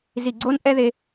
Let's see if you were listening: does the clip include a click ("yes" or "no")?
yes